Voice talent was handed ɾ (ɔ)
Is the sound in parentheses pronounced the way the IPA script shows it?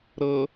no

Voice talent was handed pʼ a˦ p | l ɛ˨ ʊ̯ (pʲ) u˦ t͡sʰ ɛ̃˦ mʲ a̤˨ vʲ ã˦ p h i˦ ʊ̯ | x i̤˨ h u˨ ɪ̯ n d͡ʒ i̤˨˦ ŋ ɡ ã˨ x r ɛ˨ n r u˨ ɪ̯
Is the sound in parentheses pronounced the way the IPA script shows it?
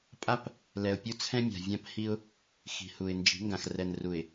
yes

